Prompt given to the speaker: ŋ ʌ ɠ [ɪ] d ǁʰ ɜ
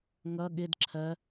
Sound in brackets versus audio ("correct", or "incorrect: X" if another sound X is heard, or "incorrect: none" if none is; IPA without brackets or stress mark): correct